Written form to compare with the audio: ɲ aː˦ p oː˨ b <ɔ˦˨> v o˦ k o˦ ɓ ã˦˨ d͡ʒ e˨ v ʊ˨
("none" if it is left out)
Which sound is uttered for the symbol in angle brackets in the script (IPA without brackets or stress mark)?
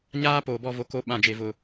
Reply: ɔ˦˨